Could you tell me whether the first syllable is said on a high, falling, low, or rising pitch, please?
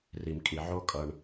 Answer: low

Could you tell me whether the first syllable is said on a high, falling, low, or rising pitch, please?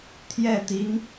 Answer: falling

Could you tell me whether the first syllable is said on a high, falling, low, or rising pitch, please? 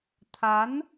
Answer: rising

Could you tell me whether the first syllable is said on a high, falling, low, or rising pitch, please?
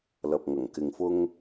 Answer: low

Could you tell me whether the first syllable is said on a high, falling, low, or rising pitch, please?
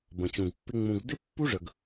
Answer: low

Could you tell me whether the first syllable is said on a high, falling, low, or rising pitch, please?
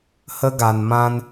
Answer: high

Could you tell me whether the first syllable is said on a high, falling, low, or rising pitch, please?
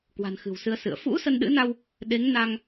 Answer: low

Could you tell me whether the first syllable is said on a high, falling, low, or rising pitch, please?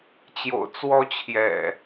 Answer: low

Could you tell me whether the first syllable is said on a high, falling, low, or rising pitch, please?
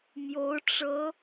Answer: rising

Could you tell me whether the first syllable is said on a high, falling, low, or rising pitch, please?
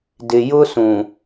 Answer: low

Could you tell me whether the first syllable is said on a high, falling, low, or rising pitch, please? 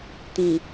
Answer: low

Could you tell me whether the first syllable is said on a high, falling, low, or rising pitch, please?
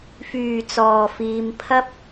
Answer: low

